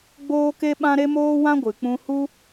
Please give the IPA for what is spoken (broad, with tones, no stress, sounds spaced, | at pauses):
ɡ͡b oː˦ k e˦ ɓ ã˦ ɾ e˦ m oː˦ w ã˦ ɡʷ ɨ˨ k͡p ũ˧ h u˦